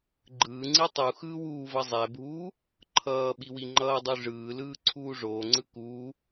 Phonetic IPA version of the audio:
ɡ͡ǃ ɯː ŋ͡ǀ i tˤ u x ɯː w uː v ʌ zˤ ɛ bʱ uː | ǃʰ ʌː ɓ i w i ŋ͡ǃ ʌː dˤ u ʐ ɯː l ɯː ǀʰ uː ʐ oː ŋ͡ǀ ɯ k uː

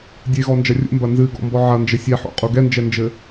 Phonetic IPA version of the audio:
dʲ e ɣ ɔ n d͡ʒ ɐ rʲ ṵ m b ɐ n z ɨ ɡ ɔ̰ m b ɔ ʕ ɐ n d͡ʒ ɘ sʲ ɛ ħ o̰ qʼ u ɡ ɛ n d͡ʒ ɛ n d͡ʒ ɘ

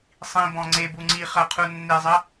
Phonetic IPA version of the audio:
sˤ ĩ b ɔ̃ ŋ͡ǀ e b u ŋ͡ǀ i χ ɐ qʰ u nː e zˤ ɐ

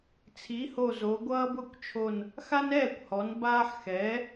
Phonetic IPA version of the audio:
t͡sʰ i˩˥ h o˧˩ z o˩˧ ɡʷ ʌː˦ b ʊ˥˩ kʷ t͡ʃʰ o˧˩ n | x a˦ n ɛː˥˩ kʷ h ɔ˩˧ n b aː˦ ħ x ɛː˩˥

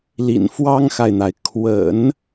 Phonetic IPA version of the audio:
l ḭ˨˩ n f w ɑ˥ ŋ x a˨ ɪ̯ n̪ a˩ ɪ̯ kʰ w ə̰˨˩˦ n

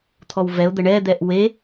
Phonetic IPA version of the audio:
t̪ʰ ɔ w v ɛ ʊ̯ d̪ ə ɳ ɛ d̪ ɛ ʔ w e

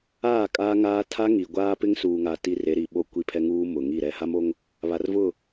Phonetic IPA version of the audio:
aː˦˨ kʼ aː˦ ŋ aː˦ tʰ a˦ ŋ i˨ ɡʷ aː˦ p ɪ˦ ŋ s uː˨ ŋ a˨ t i˦ r e˨˦ ɾ i˨ ɓ o˦˨ kʷ i˦ pʰ ɛ˦ ŋ uː˦ m ʊ˨ ŋ i˦˨ ɾ ɛ˦ h a˦ m o˦ ŋ | β a˨ r v ʊ˦˨

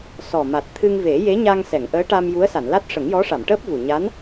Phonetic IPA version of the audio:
s ɔ˨˩ m a˨˩ t̚ t̪ʰ ɨ˧ ŋ v e˨˩˦ j e˧˥ ɲ a˧ ŋ s ɛ˨˩˨ ŋ ʔ əː˧˥ ʈ a˧ m j u˧˥ ə̯ s a˨˩˨ n l a˦˥ t̚ ʂ ə˨˩˦ ŋ j ɔ˧˥ ʂ a˨˩˨ m ʈ əː˦˥ p̚ v u˨˩ ɲ a˧˥ n

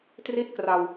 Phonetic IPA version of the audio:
t r i˥˩ t̚ k r a˧ w

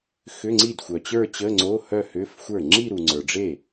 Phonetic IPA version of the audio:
x ʏ˧˥˧ ŋ͡ǀ i˥˩ d xʷ œ˨ t͡ɕ ə˞˥˧ t͡ɕ ə˧˥˧ ŋ͡ǀ o˧˥˧ h œ˥˧ h ʏ˧˥˧ f xʷ ə˞˥˩ ŋ͡ǁ i˥˧ ɾ u˨ ŋ͡ǀ ə˞˨ ɖ͡ʐ e˥˩

